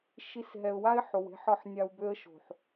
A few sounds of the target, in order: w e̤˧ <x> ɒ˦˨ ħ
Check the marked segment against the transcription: incorrect: ħ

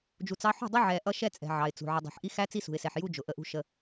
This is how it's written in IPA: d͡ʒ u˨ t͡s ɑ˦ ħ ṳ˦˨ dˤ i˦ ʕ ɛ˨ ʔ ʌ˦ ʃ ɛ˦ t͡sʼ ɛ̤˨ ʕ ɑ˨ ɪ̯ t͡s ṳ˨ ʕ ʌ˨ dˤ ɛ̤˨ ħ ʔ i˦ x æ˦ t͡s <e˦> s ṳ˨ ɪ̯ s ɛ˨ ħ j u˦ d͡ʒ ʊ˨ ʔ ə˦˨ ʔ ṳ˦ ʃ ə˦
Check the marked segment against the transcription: incorrect: i˦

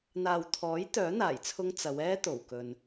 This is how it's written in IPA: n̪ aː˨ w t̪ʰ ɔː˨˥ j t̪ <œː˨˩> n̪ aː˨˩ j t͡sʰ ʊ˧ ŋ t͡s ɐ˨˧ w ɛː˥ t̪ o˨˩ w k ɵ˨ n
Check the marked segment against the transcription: incorrect: œː˨˥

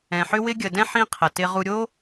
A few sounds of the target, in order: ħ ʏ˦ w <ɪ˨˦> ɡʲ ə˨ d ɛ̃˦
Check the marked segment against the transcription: incorrect: ɪ˦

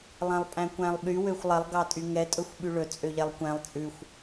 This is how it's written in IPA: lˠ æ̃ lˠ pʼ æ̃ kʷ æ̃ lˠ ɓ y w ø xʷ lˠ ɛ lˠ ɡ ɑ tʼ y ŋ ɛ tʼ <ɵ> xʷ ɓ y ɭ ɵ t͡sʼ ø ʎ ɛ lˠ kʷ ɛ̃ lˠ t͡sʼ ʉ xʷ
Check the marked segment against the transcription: correct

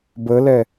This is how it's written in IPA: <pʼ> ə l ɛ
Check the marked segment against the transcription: incorrect: b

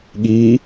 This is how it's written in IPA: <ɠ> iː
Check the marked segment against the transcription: correct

